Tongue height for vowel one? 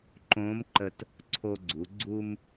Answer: mid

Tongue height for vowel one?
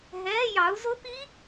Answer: mid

